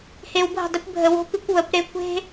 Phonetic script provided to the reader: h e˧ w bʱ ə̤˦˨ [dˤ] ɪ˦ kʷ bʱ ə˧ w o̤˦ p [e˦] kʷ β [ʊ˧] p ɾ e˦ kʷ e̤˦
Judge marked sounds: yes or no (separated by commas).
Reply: yes, no, no